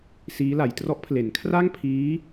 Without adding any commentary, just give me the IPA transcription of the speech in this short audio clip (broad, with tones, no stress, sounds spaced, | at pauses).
s iː˦˥ l a˩˦ j t r ɔ˦˥ ʔ pʰ l e˩˦ n kʰ r a˥˩ ŋ pʰ iː˦˥